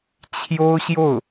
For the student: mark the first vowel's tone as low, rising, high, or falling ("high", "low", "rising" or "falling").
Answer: high